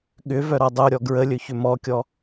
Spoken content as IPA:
ɠ ʏ v œ ɾ ɔ dˤ o ɾʲ ɔ ɡ ɹ ə lʲ ɵ ç ʏ m ɔ kʲ ɔ

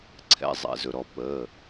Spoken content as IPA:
ǀʰ ɛ̰˩˧˩ zˤ ɛ̰˩ z ɵ˩ ɾ ɔ˩ p əː˩˧˩

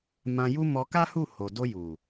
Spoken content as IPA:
m ã˧ j u˦ m ɔ˧ k a˦ h u˦˨ h o˨ d o˧ j u˨

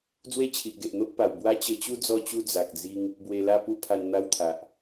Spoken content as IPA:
d͡z w e˥˧ t͡ɕʰ i˨ ʔ ɡ e˨ ʔ n̪ o˦ ʔ p a˨˩ w b w a˦ t͡ɕ ə˧ t͡ɕ u˦ d͡z ɔ˥˧ t͡ɕ u˦ d͡z a˨ k̚ d͡z i˧ ŋ | b w e˧ l a˥˧ p u˥˧ pʰ a˧ n n̪ a˦ w t̪ʰ a˨ ʔ

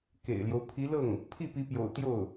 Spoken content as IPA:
k ḛ˨˩ ɪ̯ l j o˦ ʊ̯ pʰ i˧˥ l ɤ˥˩ ŋ | pʰ i˥˩ p i˧˥ p j o̰˨˩ ʊ̯ t̪ j o˥˩ ʊ̯

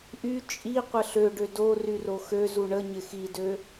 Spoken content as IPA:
ʔ y t͡ʃʼ i qʷ ə ɬ ø ɖ ø d o r y r o x ø z u ɳ ə ɲ ɪ x i d ø

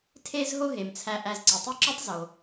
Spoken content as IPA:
tʰ e˦ z ɦ o˦ ɦ e˩ m t͡sʰ æ˨ ʔ æ˨ z ǀ i˩ tˤ i˦ ǁ o˥ tˤ z o˩

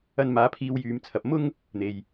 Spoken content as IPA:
ɐ˧ n m aː˨˧ pʰ iː˧ w j yː˨ m t͡sʰ ɐ˨ p̚ m ʊ˥ ŋ | n̪ e˨ j

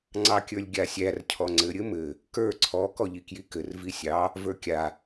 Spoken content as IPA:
ŋ͡ǀ ɑ kʲ ə˞ lʲ ɡʲ a sʲ æ r cʰ ɔ ŋ͡ǀ ɘ ɾʲ ɘ m ɘ | k ə˞ ǀʰ ɔ k ɔ ʎ i k j i k ɘ r v i sʲ ɑ | v ə˞ kʲ a

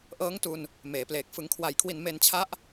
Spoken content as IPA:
ʔ ɤː˦˥ ŋ t u˧ n | m eː˩˦ p l eː˨˩ k̚ f ɯ˩˦ ŋ kʰ w a˨˩ j kʰ w i˨˩ n m e˧ n t͡ɕʰ a˦˥ ʔ

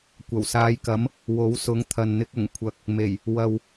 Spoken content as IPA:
kʷ ɐ˨˩ w s aː˨˧ j k ɐ˨˥ m | w o˨˥ w s ʊ˨˥ ŋ t̪ʰ ɐ˨ n n̪ ɪ˧ k̚ ʊ˨˩ ŋ kʷʰ ɐ˨ k̚ | m e˨˩ j | w ɐ˨ w

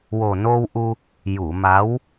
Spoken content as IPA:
w o˨˩ n o˧ w ʔ u˧ | j u˨˩˨ m a˧˥ w

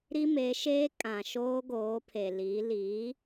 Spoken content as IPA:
ɾ i˦ m e˨˦ ʃ eː˦ kʼ ã˨ ʃ oː˦ ɡ oː˨˦ pʰ e˨ l i˨˦ l i˨˦

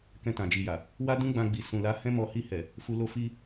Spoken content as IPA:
k ɛ̃˧ t ã˨ d͡ʒ i˨ j a˨ | w a˦ d ũ˦ ɡ͡b ã˧ ɡ͡b i˨ s ũ˨ l a˨˦ h ɛ̃˦ m ɔ˧ h i˧ h ɛ˨ | f u˧ l o˦ f i˦

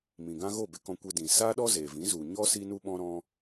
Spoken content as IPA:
m ĩ˨ ɡ ã˦ ɣ o˦˨ b e˧ k ɔ̃˧ kʷ e˧ d ĩ˨ s aː˦ ɗ ɔ˦ z eː˨ v ĩ˨˦ z u˨ ɲ ɔ˦ s iː˦ n u˦ ɓ ɔ̃˦ ɾ ɔ̃˦

